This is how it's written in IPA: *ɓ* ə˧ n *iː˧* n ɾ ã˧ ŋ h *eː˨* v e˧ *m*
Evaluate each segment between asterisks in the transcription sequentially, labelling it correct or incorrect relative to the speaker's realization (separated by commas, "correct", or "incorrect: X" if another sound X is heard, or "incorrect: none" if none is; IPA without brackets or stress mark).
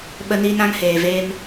correct, correct, correct, correct